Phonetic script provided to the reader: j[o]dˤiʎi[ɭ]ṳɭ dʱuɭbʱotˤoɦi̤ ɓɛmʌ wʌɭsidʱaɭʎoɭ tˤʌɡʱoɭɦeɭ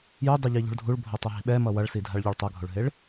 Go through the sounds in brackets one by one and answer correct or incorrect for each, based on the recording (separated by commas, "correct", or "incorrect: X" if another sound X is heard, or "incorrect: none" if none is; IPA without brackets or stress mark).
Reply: incorrect: u, incorrect: ʎ